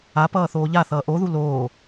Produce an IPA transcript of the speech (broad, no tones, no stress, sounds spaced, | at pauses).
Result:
a p ʌː θ oː ʎ a θ ʌː ʔ o ð u l oː